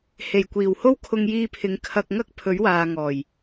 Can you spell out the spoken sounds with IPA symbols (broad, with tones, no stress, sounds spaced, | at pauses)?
h e˨˩ j kʷ iː˨˩ w h o˥ w kʰ ʊ˧ ŋ j iː˧ pʰ ɪ˨˧ ŋ kʰ ɐ˧ k̚ ŋ ɐ˥ k̚ pʰ ɵ˨˥ ɥ w aː˨ ŋ ɔː˨˩ j